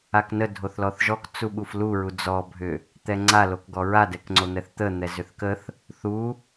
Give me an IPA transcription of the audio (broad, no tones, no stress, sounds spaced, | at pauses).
a k n ə dʱ o θ l ɔ θ ʒ ɔ k t͡s u ɓ u f l u ɹ u d͡z ɔ bʱ ʏ | t̪ ɛ ŋ͡ǀ a l o k ɡ ɔ ɹ a d ɛ k ŋ͡ǀ o n̪ ɛ θ t̪ ə n̪ ɛ z ʏ θ k ə θ | θ u